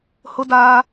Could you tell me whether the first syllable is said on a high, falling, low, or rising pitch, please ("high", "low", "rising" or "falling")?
high